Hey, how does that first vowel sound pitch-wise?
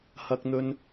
high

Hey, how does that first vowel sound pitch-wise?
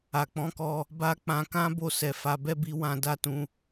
low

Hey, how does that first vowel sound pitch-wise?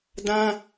high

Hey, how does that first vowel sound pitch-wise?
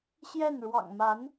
falling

